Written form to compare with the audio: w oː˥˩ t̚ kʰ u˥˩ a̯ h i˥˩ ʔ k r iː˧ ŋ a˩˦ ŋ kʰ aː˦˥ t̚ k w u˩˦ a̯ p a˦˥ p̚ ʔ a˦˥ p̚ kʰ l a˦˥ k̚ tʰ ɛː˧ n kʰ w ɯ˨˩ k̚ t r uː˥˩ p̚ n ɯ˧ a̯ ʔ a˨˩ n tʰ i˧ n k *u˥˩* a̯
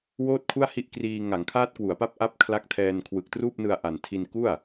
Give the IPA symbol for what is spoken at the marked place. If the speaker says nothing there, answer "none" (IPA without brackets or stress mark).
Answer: u˥˩